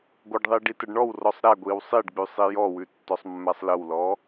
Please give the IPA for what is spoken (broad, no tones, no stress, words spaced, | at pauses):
ɡʷəɖðˤi ɖitəɖɳɔwrɔsˤ ɾæɡʷiw sˤiɖɡ͡bʉ sˤijɔwʉ tːɔsˤmːæsˤləwlɔ